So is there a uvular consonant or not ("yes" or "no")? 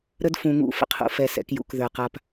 yes